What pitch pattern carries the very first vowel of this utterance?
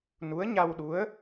rising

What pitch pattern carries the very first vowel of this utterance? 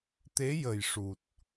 rising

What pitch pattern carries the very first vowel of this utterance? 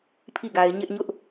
falling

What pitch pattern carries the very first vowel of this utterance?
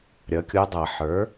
rising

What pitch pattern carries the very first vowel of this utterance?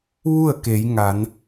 falling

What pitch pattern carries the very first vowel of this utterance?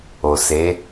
low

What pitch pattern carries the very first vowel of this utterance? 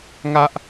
high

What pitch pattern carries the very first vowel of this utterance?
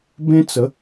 high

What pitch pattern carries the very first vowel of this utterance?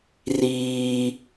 high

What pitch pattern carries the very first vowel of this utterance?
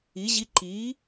rising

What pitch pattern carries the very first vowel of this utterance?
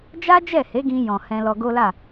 high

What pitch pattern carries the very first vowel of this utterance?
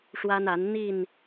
high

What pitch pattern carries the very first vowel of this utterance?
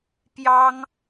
high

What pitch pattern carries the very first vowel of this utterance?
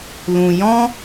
low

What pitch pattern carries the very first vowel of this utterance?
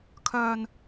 low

